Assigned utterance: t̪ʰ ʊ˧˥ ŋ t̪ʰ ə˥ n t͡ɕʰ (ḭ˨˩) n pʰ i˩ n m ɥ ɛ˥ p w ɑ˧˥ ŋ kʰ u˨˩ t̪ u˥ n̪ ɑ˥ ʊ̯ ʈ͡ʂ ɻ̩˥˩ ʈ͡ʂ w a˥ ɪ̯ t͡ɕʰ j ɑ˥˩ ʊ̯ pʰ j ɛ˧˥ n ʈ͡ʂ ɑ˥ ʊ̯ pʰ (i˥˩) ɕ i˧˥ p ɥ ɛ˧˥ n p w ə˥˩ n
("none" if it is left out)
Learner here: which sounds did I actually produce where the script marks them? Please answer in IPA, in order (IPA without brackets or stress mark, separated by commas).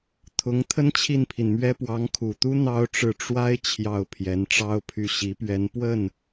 i˥˩, y˥˩